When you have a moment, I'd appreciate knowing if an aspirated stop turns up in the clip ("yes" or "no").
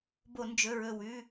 no